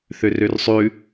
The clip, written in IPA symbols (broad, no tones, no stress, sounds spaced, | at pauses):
θ ø r ø r sˤ ʉ